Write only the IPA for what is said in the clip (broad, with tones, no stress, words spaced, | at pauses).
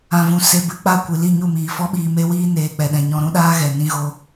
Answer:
ã˨vũ˨ se˧bɨ˨˦ k͡pa˦˨kʷɨ˨li˦˨ ɲu˦˨miː˨fɔ˦ɓiː˧ me˦wiː˦neː˧ k͡pɛ˨ɗɛ̃˨ ɲɔ̃˧ɾũ˦ ɗaː˦ɣɛ˨ nĩ˧ɣo˧